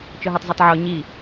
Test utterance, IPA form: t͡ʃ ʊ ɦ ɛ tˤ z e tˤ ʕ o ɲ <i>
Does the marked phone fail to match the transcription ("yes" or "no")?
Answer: no